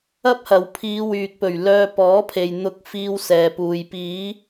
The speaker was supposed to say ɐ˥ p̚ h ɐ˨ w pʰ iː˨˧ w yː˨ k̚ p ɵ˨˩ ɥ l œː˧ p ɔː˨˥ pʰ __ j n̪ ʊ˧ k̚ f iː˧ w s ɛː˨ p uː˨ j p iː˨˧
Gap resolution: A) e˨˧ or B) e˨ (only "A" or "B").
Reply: B